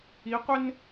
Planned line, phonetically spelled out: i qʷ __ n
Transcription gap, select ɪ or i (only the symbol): ɪ